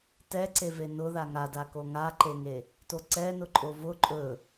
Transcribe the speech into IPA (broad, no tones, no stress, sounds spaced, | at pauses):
t ɛ ǀ e v e n ʊ ð a ŋ a d a k o ŋ a ǃ e ŋ e | t o ǀ ɛ n ʊ ǃʼ o v ʊ ǃʼ ɵ